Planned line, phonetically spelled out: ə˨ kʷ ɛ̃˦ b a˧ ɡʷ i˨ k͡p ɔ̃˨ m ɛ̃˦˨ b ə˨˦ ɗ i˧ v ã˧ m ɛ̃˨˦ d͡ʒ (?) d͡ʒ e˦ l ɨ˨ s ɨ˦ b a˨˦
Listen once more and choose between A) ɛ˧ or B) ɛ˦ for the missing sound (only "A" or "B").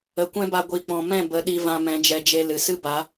B